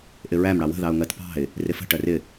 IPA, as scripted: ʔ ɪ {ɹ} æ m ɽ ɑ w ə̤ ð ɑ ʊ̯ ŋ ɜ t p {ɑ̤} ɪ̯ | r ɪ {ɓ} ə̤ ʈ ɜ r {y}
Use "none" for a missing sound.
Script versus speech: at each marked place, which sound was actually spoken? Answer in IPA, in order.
ɹ, ɑ̤, f, ɪ

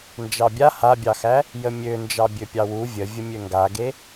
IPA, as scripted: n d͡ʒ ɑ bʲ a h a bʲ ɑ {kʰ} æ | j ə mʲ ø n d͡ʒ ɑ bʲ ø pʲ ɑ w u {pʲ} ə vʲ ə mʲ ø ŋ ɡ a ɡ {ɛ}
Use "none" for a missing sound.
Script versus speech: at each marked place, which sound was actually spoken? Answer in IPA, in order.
x, vʲ, e

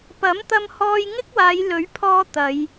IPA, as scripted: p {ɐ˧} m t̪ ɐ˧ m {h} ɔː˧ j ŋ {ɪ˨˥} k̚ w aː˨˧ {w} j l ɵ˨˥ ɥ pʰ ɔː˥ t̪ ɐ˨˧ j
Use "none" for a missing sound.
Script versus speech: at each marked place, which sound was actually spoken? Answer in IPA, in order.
ɐ˨˥, h, ɪ˥, none

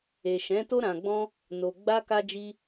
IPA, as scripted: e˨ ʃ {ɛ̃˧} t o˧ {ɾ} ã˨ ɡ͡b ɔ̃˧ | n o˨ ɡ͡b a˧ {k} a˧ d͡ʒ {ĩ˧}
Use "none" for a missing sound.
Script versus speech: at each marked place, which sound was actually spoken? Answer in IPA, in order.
ɛ̃˨˦, ɾ, k, i˧

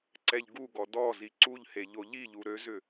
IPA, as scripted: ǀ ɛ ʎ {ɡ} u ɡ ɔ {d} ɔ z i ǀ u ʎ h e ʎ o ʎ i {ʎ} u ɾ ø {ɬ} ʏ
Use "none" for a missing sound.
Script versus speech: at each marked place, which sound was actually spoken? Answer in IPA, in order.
ɡ, d, ʎ, z

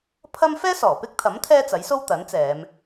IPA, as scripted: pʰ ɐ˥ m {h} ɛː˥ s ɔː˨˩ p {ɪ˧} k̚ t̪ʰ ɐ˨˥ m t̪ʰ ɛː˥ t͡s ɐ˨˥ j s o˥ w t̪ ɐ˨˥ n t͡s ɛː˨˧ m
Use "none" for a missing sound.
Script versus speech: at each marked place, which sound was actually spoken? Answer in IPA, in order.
f, ɪ˥

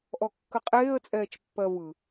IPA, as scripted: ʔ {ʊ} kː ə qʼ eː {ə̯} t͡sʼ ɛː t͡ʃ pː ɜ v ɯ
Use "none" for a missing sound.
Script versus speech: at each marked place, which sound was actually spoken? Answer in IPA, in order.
ɔ, ə̯

